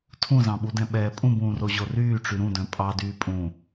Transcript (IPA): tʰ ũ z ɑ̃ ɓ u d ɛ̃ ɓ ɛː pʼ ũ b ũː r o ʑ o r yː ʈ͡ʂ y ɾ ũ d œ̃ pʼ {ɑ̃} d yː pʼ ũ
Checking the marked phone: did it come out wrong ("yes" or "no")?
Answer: yes